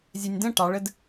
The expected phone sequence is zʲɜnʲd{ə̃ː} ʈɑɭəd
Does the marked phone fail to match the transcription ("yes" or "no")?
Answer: yes